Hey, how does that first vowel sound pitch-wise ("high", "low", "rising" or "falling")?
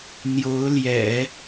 rising